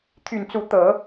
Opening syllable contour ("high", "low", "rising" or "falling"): low